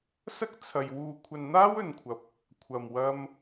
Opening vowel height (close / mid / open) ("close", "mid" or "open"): open